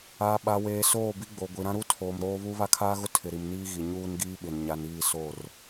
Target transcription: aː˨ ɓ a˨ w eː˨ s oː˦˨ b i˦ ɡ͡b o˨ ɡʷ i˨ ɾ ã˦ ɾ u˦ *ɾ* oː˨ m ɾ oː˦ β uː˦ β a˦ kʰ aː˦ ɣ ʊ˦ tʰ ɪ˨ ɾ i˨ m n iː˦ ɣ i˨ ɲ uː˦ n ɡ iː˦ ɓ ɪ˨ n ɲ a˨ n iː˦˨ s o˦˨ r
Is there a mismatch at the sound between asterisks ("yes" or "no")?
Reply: yes